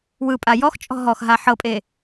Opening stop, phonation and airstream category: ejective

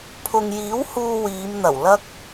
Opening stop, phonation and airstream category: aspirated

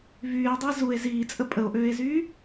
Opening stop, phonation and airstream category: plain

